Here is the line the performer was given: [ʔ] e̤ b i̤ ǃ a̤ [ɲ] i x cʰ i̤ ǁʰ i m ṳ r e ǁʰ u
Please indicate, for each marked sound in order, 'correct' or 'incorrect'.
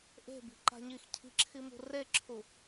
correct, correct

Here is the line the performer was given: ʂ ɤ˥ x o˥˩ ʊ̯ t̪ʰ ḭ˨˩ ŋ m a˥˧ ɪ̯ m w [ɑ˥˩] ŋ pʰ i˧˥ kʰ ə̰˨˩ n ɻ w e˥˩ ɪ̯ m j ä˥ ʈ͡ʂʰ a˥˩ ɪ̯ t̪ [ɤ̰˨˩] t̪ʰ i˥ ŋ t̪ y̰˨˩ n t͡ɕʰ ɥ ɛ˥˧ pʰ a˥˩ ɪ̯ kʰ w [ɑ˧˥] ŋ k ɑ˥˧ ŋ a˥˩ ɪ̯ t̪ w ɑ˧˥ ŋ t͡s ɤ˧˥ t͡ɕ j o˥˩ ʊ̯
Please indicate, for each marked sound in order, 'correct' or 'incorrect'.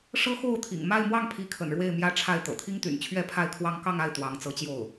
correct, correct, incorrect: ɑ˥

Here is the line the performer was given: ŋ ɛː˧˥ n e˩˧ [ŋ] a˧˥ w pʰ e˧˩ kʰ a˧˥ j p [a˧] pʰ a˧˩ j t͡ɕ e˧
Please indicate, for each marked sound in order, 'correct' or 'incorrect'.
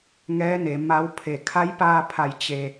incorrect: m, incorrect: aː˧

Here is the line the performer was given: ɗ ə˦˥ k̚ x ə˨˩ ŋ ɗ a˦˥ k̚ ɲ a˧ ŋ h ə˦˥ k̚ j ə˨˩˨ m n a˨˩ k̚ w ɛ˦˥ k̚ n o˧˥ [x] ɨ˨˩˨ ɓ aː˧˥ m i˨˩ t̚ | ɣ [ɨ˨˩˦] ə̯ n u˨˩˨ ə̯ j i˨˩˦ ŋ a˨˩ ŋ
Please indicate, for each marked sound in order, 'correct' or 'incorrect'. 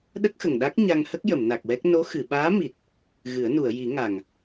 correct, correct

